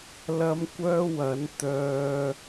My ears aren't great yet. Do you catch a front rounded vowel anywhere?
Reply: yes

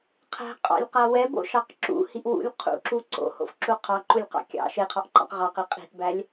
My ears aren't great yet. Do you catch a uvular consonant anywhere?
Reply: yes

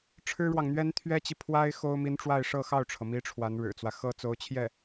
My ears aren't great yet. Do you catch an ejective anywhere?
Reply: no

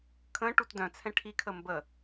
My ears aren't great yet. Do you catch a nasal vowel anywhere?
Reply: yes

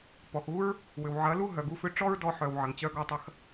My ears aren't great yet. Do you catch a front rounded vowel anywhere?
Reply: yes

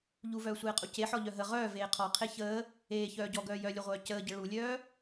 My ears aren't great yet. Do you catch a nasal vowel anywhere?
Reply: no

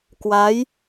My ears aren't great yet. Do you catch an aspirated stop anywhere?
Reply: no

